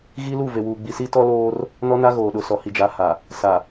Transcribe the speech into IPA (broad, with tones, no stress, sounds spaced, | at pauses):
ɣ i˦ l u˦˨ v e˨ w uː˨ ɡ͡b i˨ s i˦ t ɔ˦ l oː˦ r | n ɔ˦ n a˦ ɣ oː˨ ɗ ʊ˨ s ɔ˨ h i˨ d͡ʒ a˨˦ h a˨ | s a˨